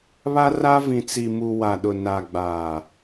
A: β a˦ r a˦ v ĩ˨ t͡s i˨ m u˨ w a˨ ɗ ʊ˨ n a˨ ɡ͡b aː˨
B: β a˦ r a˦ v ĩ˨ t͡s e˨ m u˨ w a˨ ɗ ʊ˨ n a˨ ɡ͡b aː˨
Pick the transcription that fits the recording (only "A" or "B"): A